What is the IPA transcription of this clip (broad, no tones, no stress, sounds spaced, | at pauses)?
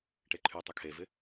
ʈ e ǃʰ y tˤ ɐ kʰ e v ɪ